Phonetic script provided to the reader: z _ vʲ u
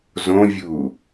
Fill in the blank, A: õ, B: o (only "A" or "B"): A